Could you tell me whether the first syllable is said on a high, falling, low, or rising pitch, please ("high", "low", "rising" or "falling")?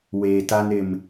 low